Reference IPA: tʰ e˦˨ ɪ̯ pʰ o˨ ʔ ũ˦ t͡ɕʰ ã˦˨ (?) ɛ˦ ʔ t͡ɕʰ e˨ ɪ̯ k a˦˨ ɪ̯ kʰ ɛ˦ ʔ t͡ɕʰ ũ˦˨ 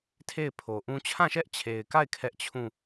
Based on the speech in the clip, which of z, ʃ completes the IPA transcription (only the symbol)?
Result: ʃ